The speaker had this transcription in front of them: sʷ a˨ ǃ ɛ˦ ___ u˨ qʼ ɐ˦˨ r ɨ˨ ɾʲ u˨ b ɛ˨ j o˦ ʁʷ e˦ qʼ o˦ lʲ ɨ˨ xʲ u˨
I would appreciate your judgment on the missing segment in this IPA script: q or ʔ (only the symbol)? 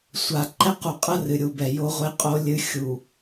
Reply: q